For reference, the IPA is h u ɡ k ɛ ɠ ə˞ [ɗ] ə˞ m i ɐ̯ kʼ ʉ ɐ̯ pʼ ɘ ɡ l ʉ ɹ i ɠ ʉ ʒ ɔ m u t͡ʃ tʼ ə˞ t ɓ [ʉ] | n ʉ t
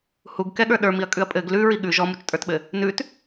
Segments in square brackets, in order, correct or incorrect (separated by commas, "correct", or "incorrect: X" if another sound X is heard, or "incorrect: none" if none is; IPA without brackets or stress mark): correct, incorrect: ɘ